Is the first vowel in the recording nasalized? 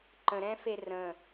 yes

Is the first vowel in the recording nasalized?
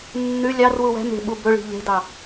no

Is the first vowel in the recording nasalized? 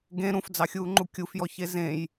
yes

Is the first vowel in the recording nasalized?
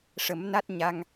no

